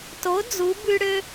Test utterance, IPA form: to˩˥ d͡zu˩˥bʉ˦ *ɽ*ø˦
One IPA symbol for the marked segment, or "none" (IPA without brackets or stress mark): ɽ